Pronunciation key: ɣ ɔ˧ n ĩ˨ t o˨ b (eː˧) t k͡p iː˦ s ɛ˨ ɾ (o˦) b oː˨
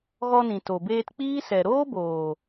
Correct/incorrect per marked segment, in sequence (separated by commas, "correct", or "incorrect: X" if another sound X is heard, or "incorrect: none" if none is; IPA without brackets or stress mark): correct, incorrect: oː˦